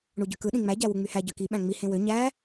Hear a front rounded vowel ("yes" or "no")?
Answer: yes